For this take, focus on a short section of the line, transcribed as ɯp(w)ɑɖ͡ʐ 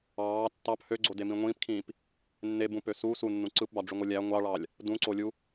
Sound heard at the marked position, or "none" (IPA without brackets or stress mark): b